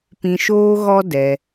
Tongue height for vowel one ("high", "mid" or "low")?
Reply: high